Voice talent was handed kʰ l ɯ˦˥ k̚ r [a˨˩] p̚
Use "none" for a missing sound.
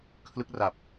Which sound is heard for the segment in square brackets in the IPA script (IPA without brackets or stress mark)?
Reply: a˨˩